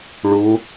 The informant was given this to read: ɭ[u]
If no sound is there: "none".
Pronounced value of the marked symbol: u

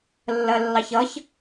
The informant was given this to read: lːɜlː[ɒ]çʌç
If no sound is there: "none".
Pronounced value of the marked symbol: ɑ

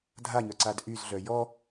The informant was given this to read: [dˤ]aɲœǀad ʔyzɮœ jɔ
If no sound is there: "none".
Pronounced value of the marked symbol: dʱ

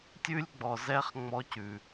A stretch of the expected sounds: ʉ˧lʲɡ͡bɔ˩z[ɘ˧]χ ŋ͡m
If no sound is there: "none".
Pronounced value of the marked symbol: ɛ˧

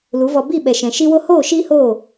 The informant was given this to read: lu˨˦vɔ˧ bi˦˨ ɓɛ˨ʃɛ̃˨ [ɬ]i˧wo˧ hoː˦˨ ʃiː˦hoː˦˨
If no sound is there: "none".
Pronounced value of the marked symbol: ʃ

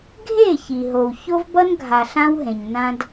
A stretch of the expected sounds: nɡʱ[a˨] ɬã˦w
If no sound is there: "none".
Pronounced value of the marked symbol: a˨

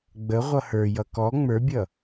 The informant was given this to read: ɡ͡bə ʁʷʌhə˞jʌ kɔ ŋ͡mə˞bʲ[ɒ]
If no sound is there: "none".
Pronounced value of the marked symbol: ʌ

